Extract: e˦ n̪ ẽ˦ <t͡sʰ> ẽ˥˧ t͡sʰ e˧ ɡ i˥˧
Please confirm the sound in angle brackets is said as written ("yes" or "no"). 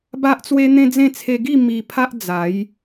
no